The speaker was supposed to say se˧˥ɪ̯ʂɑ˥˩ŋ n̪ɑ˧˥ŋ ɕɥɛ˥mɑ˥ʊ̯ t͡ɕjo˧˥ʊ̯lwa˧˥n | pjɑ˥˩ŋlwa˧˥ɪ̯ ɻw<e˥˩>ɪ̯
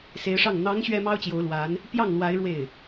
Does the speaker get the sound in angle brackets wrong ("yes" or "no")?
no